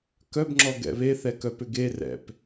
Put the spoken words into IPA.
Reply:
k œ b ŋ͡ǁ ɔ ɡ ɛ̰ β e θ ɛ k œ p ʏ ɡ e r ɛ̰ p

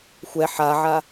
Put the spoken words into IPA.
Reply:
xʷ ɛ ħ a ʕ a

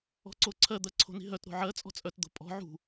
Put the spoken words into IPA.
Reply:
ɔ̤ ǀ o ǀʰ ɜ d̪ ɜ ǀʰ o̤ n i̤ ɦ œ t ɾ o̤ ʕ ɜ t͡sʼ ɔ̤ t͡sʼ œ t d̪ o̤ pʼ ɔ̤ ʕ ṳ

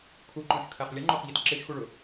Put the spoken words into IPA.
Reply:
kʰ u ǃ ɔ̃ ʃ kʰ æ χ lʲ ʌ ŋ͡ǃ ʊ χ ʎ ʌ t ǁ ɪ ʃ x u ɭ ʊ

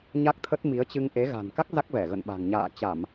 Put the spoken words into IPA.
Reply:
ɲ a˦˥ k̚ t̪ʰ ə˦˥ t̚ m i˨˦ ə̯ t͡ɕ ɨ˧ ŋ ʔ e˨˦ ɣ a̤˨˩ n k a˦˥ k̚ z a˦˥ k̚ v ɛ˧˩ ɣ ə̰˧˨ n ɓ a̤˨˩ ŋ ɲ a̰ː˧˨ t͡ɕ a˧˩˨ m

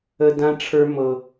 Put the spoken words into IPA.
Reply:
ə˦ d ã˦ ʈ͡ʂʰ ə˞˦ m ɤ˧

